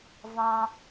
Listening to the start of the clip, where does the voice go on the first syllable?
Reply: high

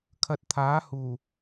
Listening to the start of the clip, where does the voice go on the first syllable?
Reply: low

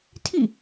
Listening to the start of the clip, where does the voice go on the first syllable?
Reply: falling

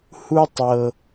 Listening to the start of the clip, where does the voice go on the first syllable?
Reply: high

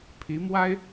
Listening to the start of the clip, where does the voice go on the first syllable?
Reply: rising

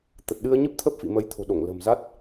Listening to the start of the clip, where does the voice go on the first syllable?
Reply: low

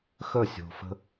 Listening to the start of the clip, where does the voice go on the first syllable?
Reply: falling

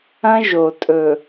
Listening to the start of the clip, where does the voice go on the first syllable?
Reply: high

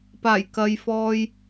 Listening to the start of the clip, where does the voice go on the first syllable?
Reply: low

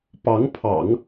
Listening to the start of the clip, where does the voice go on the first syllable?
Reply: rising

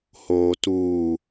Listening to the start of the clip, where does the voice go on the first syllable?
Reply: low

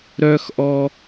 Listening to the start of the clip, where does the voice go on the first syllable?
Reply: high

